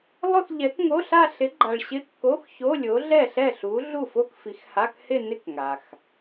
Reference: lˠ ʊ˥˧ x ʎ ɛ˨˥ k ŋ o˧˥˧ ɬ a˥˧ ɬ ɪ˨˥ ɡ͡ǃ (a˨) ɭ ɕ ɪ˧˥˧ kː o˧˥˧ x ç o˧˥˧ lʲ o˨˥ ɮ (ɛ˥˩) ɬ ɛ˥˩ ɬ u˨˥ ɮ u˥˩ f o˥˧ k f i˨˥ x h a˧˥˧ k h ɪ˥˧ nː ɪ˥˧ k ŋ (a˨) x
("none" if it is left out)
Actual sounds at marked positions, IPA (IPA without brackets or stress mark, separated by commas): a˨, ɛ˥˩, a˨